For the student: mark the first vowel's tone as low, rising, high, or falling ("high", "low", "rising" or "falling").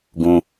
high